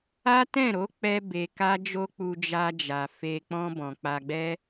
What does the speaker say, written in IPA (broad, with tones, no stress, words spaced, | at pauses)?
a˦tɛ̃˦˨ɾo˨˦ k͡pɛ˦be˧ka˦d͡ʒo˦ k͡pu˧d͡ʒa˧d͡ʒa˨ fe˧ k͡pɔ̃˧ bɔ̃˨k͡pa˧ɡ͡bɛ˦